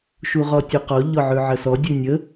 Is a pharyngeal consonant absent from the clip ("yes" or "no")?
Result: no